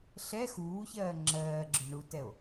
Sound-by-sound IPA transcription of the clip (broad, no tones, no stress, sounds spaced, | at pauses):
ɬ ɛ x uː ç ɜː ŋ͡ǁ ɜː ɡ͡ǁ ʏ ɳ u t ɛ o̯